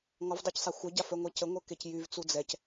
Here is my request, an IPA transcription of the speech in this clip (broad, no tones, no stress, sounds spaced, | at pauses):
ŋ ɔ v dˤ œ c sˤ a xʷ œ ɟ a f œ ŋʷ ɛ c ə ŋʷ œ k e c j y v t͡s u d͡z ɛ c